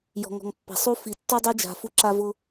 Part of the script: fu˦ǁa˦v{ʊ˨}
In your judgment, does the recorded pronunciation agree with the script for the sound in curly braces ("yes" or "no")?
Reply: no